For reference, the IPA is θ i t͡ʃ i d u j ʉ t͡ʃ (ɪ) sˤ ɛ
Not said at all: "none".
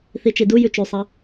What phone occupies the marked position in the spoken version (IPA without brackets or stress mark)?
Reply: y